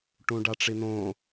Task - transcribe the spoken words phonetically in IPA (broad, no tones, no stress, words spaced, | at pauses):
ʈũɖaʈ͡ʂin̪õ